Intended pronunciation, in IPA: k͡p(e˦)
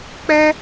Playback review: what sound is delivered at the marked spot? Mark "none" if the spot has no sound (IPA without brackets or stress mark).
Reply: ɛ˦